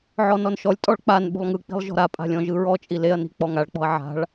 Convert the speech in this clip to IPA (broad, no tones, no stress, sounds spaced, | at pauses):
ʕ ɔ n ɔ n ʃ ɔ lʲ tʼ ɔ ɭ k͡p a n ɓ ṳ lˠ ŋ ɯ k͡p i̤ lˠ ʒ ɔ̤ ɾ a pʼ a̤ lʲ ɔ̃ ʒ ɯ ɹ ɔ t͡ʃʼ i l e ɐ̯ n i̤ k͡p ɔ ŋ a ɭ k͡p ɔ̤ ɐ̯ ʕ a̤ ɭ